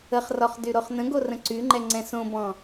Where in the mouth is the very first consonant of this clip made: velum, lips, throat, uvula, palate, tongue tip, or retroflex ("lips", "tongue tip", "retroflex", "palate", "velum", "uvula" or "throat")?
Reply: uvula